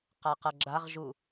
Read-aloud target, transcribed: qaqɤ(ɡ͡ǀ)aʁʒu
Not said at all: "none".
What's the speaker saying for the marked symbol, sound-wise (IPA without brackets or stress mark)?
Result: ɡ͡ǁ